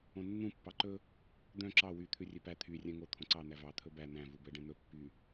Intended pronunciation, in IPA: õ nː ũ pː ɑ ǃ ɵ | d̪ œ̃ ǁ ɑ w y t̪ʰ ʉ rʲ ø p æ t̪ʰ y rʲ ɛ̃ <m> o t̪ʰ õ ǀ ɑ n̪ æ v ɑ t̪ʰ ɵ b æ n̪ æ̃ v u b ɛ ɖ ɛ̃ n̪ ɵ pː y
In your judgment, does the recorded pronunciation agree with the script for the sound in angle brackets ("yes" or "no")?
no